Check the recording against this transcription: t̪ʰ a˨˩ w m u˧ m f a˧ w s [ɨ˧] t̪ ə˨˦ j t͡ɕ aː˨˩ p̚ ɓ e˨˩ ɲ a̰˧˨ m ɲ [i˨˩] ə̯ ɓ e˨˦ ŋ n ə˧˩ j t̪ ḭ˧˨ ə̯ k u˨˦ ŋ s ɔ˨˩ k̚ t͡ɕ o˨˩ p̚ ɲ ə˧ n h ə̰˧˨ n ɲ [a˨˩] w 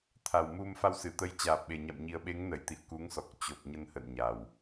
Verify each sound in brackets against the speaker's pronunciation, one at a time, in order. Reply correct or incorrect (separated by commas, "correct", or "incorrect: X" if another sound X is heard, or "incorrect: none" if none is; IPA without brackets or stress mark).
incorrect: ɨ˧˩, correct, correct